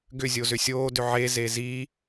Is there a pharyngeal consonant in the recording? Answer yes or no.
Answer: yes